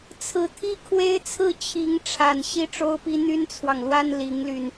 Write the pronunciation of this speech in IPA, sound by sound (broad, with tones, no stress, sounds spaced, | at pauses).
t͡sʰ ɹ̩˧˥ t̪ʰ i˥ kʰ w e˥ ɪ̯ t͡sʰ ɹ̩˥˩ t͡ɕʰ i˧˥ ŋ ʈ͡ʂʰ a˨˩ n ɕ i˥ ʈ͡ʂ o˥ ʊ̯ p i˥ n̪ y˥ n t͡sʰ w ɑ˨ ŋ l w a˥ n l i˧˥ ŋ l y˧ n